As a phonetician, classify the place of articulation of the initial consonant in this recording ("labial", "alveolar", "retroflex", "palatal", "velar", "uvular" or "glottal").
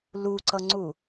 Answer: alveolar